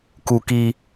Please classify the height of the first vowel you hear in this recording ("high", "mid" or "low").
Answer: high